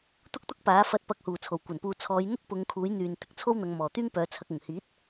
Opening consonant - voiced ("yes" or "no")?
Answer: no